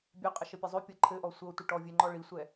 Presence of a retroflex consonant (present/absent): present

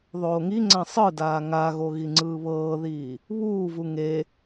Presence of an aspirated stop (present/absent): absent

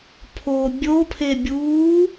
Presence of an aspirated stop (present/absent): present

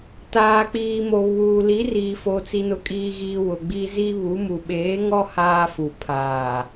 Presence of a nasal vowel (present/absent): absent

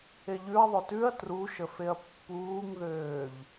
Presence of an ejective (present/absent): absent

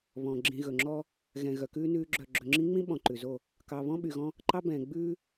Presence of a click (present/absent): present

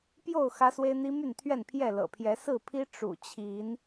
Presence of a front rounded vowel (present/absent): present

